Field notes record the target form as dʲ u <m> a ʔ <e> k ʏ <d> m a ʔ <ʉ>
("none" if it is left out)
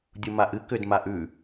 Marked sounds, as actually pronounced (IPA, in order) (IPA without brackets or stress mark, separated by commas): m, ɨ, d, ʉ